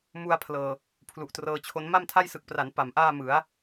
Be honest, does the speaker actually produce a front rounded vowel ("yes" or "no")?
no